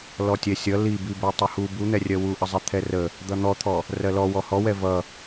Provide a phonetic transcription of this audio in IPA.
l ɔ tʲ ɛ sʲ ʌ l i b i b ɛ tˤ ə h u b u n̪ ɛ rʲ ɜ w u ʔ ə zˤ ɛ t̪ʰ ɛ r ə | d̪ ʌ n̪ ɔ t̪ʰ ɔ | r ɜ l ɔ w ɔ h ɔ w ɛ v ʌ

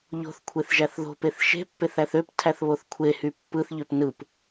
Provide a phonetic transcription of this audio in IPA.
ʎ o̤ θ kʷʰ e θ ʒ æ θ ð o̤ p e θ ʃ e̤ pː e θ æ θ ø p tʰ æ θ β o θ kʷʰ e h y pː ɯ θ ʎ ø p n ɯ p

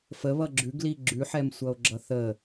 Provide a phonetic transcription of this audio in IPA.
f ə β ʌ ɡ͡ǁ ʉ ɡ l i ɡ͡ǁ ʉ ħ ɛ m sʷ ʌ o̯ ɡ͡ǁ ʌ θ ə

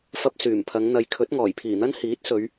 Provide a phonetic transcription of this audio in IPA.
f ɐ˧ p̚ s yː˨˩ m pʰ ɐ˨˧ ŋ n̪ ɐ˨ j kʰ ɵ˨˥ t̚ ŋ ɔː˨˩ j pʰ iː˨˩ n̪ ɐ˥ n h iː˨˥ t̚ s ɵ˨˧ ɥ

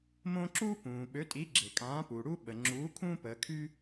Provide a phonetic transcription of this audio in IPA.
m õ˦ ǁ uː˦ p ũː˩ ɓ ø˩˥ tʼ i˩˥ ɡ͡ǁ e˩ kʼ ãː˩˥ p uː˩ ɽ u˦ ɓ ə˩ ŋ͡ǁ uː˩˥ kʰ ũː˦ p əː˩˧ kʰ y˦

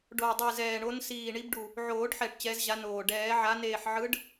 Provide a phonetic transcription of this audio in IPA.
ɖ o˨˩ w dˤ ɯ˨˩ z ɛː˨˩ ɳ o˨˦ n s iː˨˩ ɳ i˨˦ b ɖ u˨˩ | ʕ oː˨˩˦ ɖ ħ ɛ˨˩ ʈ t͡ɕ ɛ˨˦ z ʑ a˨˦ n oː˨˩ ɖ ɛː˨˩˦ ʕ a˨˦ n eː˨˩ ħ ʕ ɯ˨˦ ɖ

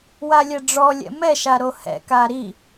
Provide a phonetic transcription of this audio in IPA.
w a lʲ ɛ ɖ͡ʐ ɔ lʲ ɛ̰ m ɛ ʃ a ɾ o h ɛ̰ k a ɾ i

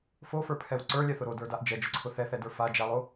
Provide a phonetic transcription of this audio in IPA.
f o f ə˞ pʰ ɛ w ǀ ə˞ lʲ ɛ θ ʊ ɾ o d ə˞ d a ʔ d͡ʒ ɛ d͡ʒ ʊ ǀʰ ʊ θ ɛ θ ɛ d ə˞ f a d͡ʒ a lˠ o

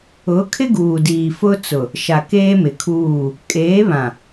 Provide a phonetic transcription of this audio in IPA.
ʊ˨˦ kʰ ɪ˦ ɡ uː˨ d iː˨ f ʊ˦ t͡s ʊ˨ | ʃ a˨ k eː˦ m ɪ˨ kʰ uː˦˨ | kʼ eː˨˦ β ã˨

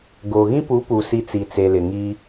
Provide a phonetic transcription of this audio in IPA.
ɡ oː˨ ɣ ĩ˦ p u˨˦ p u˨ s i˨˦ t͡s i˨ t͡s e˨ l ɪ˨ ŋ i˦

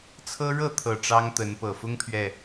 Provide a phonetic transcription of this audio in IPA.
t͡sʰ ɤ˦ ɻ ɤ˥˨ t̪ʰ ɤ˨˩ ʈ͡ʂ ɑ˦ ŋ t̪ ə˨˦ n p ɤ˨˩ f ʊ˦ ŋ pʰ ɥ ɛ˨

